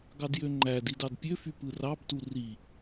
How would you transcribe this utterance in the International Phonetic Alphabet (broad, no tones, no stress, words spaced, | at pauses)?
ɡɑdjøŋ͡ǃædi dɑdpʲøfy pɯrɑbtu ri